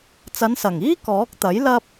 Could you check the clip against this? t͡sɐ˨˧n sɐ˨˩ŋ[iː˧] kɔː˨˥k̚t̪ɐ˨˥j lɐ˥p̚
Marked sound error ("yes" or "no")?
yes